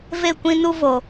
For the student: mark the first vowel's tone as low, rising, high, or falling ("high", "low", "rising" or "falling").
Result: falling